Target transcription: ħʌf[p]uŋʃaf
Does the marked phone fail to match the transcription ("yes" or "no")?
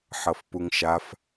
no